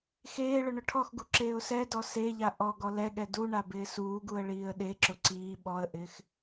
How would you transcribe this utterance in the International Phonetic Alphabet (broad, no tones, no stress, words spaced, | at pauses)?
xeː ɭʊɳʊʈʰɔxɡu ǁeːʊ̯sɛdɔ seʎa ʔɔɡɔ lɛɠɛ duɳa bɪːsuːɡuə̯ ɭiːə̯ɗeǁʊ ǀiː ɓɔə̯ʔɪːx